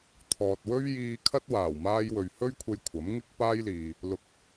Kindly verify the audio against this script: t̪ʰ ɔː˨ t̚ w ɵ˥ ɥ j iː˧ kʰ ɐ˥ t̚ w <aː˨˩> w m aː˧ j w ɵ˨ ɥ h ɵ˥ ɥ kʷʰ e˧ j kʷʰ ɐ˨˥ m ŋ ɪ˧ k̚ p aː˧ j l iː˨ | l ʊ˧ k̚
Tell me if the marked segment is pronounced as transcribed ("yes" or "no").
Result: yes